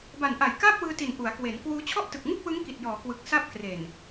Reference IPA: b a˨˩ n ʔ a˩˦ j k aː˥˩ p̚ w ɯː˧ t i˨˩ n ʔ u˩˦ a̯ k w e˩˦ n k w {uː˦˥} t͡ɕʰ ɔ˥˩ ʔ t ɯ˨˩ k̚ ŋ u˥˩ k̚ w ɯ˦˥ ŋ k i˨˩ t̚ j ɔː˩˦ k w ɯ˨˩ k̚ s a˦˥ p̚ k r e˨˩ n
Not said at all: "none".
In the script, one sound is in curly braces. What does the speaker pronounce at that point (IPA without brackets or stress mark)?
uː˦˥